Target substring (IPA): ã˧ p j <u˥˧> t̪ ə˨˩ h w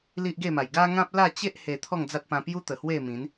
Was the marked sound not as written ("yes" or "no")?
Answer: yes